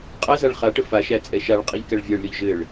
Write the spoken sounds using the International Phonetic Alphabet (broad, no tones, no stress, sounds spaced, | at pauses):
qʼ æ z a ɭ χ a ʈ ə f a ʃ æ t͡sʼ ɛ ʃ a ɭ qʼ i ʎ k æ ɭ vʲ æ ɭ lʲ ɔ ʎ ʒ ɘ ɭ